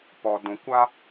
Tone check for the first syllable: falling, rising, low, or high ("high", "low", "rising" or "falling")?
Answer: low